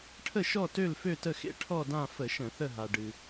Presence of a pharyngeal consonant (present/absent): absent